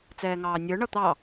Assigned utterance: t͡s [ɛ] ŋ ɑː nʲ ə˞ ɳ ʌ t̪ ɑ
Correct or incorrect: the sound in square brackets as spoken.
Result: incorrect: ɛː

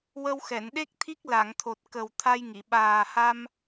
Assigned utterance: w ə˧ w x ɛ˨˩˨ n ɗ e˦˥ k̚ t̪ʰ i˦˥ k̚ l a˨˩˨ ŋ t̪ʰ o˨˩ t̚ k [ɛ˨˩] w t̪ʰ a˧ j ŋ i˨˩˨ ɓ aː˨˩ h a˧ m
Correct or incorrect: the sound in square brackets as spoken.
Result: incorrect: ə˨˩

